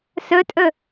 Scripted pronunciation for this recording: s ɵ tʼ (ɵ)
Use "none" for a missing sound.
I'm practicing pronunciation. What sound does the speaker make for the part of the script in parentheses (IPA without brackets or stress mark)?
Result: ɵ